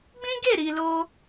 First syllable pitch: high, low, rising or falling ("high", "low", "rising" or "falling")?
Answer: high